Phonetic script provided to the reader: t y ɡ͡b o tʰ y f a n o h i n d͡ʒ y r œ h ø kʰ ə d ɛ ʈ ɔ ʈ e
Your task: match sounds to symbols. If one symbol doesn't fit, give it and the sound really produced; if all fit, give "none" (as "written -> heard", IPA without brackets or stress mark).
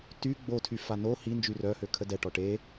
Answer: none